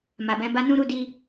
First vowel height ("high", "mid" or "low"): low